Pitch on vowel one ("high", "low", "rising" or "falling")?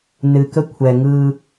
low